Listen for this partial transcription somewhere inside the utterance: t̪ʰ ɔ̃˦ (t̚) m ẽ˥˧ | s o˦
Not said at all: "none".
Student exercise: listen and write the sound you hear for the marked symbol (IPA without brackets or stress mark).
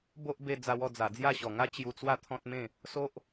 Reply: t̚